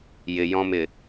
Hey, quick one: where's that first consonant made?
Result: palate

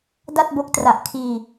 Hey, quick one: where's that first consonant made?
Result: tongue tip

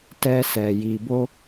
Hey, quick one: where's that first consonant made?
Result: tongue tip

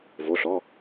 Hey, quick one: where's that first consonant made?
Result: lips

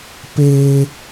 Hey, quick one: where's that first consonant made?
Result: lips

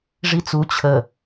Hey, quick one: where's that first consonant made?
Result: retroflex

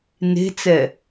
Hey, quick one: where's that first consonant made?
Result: tongue tip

